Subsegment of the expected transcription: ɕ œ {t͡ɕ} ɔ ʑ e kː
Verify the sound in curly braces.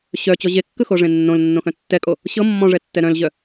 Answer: correct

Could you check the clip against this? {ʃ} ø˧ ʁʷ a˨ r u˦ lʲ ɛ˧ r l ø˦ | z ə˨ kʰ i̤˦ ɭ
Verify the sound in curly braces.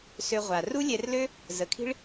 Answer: incorrect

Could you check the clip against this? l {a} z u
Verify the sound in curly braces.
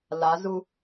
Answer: correct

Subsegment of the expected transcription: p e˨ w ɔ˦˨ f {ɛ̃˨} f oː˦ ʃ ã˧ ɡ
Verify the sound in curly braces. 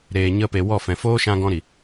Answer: correct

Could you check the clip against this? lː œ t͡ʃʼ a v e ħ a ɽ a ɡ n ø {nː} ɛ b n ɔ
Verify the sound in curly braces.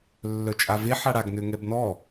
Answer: incorrect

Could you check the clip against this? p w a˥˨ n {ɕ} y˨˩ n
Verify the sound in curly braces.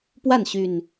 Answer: correct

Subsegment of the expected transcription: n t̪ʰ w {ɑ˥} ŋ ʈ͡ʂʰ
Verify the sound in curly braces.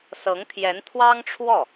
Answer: correct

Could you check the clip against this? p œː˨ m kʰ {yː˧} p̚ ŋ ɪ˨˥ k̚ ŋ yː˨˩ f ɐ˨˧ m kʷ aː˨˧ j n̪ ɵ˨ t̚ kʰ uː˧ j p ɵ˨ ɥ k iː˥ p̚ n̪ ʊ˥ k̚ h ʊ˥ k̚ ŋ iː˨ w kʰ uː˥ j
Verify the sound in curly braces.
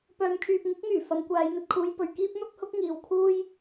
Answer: incorrect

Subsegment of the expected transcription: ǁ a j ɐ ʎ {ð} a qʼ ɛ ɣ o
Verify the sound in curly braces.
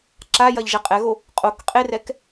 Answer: incorrect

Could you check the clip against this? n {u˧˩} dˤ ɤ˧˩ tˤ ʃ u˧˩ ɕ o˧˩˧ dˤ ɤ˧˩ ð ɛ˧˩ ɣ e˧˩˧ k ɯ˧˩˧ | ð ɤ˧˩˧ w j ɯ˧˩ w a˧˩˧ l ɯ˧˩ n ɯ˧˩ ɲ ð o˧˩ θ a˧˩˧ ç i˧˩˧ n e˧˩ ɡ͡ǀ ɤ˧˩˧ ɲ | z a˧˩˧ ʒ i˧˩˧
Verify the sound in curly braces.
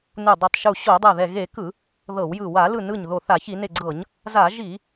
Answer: correct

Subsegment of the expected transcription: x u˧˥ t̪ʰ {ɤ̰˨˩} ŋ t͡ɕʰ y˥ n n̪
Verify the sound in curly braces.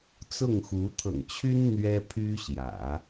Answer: correct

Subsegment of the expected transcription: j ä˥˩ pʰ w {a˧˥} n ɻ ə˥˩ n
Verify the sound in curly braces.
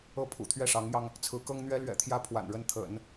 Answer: incorrect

